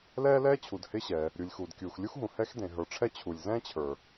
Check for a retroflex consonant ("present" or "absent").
present